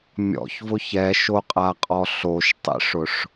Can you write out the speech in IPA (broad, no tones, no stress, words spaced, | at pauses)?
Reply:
mʲɔ̰çvʊç ɛʃoqʼaqʼɔ ɬoʃtˤḭʂʊʂ